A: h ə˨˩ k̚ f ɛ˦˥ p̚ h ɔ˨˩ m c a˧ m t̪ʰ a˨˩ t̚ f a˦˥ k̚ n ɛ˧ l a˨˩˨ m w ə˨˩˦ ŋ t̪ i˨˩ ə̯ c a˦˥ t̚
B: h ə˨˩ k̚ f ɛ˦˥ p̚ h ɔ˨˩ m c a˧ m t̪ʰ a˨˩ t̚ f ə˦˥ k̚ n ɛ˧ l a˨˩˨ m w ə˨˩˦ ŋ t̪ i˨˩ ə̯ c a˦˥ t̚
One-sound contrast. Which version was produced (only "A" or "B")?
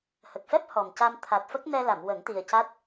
B